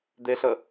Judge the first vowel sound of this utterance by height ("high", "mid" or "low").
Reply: mid